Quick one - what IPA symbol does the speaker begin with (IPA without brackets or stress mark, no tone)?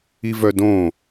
i